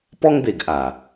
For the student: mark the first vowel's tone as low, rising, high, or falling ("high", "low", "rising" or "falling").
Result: high